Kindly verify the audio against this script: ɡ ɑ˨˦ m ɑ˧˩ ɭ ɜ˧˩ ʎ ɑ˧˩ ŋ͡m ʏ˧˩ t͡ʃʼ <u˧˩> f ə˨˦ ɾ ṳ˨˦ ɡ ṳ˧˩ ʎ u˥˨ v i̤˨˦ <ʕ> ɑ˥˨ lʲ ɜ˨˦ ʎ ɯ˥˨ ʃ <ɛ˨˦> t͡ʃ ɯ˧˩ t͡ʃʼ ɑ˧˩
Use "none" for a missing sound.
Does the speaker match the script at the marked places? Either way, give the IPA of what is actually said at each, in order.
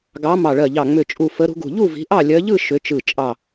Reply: u˧˩, ʔ, ʏ˨˦

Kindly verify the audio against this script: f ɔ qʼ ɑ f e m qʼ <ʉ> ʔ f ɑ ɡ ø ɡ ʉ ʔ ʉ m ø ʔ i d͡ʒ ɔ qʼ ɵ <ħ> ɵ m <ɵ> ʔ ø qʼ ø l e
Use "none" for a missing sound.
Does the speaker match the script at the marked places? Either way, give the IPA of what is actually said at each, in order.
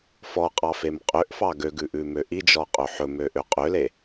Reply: ø, ħ, ø

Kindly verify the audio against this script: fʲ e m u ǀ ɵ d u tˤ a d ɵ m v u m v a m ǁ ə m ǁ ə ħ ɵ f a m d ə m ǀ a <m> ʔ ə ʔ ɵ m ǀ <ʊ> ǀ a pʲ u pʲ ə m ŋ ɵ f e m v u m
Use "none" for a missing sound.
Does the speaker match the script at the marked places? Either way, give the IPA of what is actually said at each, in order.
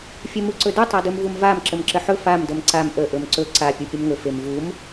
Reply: m, ɵ

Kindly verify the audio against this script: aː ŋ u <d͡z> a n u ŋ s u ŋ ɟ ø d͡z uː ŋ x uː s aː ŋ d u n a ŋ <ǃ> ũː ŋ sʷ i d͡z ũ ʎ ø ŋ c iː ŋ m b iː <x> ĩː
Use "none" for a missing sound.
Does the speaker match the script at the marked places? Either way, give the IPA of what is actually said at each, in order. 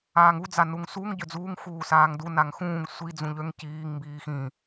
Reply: d͡z, x, x

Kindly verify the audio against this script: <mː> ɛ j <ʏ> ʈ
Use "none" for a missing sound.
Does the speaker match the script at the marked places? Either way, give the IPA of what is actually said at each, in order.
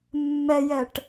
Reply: mː, ɛ

